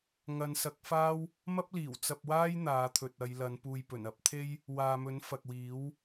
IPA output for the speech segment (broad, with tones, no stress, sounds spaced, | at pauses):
ŋ ɐ˨˧ n s ɐ˨˥ k̚ f aː˥ w | m ɐ˥ p̚ l iː˨˩ w t͡s ɐ˧ p̚ w aː˥ j n̪ aː˨˧ t̪ʰ ɵ˨ t̚ ɐ˨˧ j l ɐ˨˧ n p uː˨ j p ɵ˨˩ n ɐ˨˥ p̚ t̪ʰ e˥ j | w aː˨ m ɵ˨˥ n f ɐ˨ k̚ w iː˨˥ w